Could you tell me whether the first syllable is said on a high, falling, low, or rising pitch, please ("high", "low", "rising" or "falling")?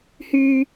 high